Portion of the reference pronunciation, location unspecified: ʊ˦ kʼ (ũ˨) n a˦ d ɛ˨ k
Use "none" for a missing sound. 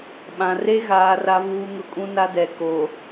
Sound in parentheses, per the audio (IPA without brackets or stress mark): ũ˦